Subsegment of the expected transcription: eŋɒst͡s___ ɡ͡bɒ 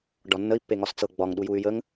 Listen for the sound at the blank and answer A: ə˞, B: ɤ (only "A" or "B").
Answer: B